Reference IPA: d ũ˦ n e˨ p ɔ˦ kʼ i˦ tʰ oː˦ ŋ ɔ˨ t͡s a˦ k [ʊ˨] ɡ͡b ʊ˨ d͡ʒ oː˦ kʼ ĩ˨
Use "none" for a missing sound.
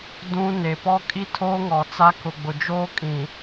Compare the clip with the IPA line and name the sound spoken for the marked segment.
ʊ˨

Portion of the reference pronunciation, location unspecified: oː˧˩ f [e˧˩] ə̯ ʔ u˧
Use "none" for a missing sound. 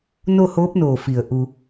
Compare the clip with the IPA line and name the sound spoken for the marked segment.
i˧˩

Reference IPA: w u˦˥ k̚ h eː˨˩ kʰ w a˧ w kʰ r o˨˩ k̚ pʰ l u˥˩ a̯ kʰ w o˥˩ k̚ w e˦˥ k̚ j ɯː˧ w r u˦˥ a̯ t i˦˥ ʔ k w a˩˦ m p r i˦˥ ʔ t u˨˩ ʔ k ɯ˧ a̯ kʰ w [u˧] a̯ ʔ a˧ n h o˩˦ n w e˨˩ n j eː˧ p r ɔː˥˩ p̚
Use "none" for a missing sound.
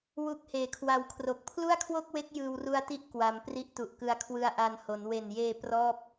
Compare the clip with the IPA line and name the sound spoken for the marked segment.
ɯ˧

